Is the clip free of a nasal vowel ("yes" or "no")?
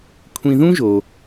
no